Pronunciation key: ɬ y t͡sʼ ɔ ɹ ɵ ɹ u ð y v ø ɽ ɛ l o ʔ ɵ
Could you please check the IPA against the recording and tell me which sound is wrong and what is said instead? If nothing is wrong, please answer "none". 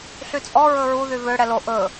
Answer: none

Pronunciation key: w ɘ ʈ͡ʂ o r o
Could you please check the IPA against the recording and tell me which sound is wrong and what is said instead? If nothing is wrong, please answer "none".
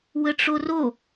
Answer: none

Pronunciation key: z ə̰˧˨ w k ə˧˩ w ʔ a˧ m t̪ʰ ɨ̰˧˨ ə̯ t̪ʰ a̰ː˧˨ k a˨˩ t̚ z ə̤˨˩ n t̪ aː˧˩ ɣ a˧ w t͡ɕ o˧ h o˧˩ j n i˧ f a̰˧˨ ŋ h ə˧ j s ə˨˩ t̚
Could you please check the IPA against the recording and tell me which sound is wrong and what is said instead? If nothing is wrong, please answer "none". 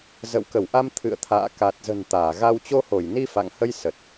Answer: none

